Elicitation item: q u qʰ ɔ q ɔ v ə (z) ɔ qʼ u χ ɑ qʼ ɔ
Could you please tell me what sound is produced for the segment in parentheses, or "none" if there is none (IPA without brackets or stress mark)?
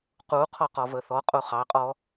θ